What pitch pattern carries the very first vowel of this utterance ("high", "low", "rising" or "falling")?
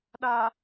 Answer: low